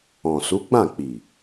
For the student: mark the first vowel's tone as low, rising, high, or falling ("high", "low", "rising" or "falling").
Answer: low